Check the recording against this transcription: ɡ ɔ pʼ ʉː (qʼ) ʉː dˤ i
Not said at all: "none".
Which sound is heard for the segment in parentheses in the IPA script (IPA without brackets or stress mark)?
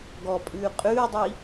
qʼ